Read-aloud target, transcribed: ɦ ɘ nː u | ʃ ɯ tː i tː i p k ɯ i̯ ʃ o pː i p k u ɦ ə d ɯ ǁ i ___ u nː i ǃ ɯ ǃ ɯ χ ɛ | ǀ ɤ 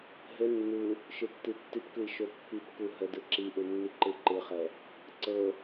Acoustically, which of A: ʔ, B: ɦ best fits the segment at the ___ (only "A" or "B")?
A